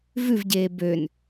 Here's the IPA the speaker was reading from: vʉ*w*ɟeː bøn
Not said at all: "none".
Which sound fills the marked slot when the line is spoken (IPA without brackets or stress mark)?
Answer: v